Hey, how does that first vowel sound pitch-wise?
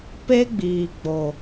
high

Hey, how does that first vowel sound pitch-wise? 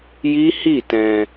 high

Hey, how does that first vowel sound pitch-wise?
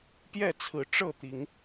falling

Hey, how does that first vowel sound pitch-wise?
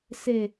low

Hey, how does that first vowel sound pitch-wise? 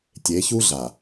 rising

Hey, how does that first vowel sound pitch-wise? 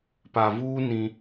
low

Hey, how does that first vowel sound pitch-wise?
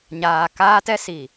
low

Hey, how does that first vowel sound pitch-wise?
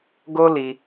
high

